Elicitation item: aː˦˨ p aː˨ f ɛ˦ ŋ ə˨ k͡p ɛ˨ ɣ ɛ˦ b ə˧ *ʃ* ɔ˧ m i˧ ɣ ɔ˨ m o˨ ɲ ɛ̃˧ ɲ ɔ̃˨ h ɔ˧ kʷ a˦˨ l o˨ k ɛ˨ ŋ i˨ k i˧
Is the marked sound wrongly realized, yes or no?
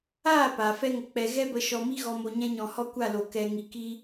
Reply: no